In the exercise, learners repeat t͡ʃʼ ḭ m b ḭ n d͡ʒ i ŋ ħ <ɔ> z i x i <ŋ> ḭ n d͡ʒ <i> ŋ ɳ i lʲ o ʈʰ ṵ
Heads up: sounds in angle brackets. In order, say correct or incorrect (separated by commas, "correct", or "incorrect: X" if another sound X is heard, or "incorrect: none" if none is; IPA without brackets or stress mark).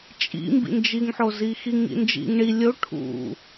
incorrect: o, correct, incorrect: ḭ